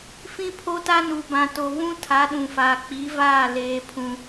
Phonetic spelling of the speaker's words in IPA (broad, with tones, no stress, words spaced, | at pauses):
fĩ˦pʰo˦ta˦ nu˨bã˨to˨ βũ˦ tʰa˨˦ɗũ˨faː˨ k͡pi˨˦vaː˦˨ leː˨pʰũ˨